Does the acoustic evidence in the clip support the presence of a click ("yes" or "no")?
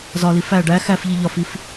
no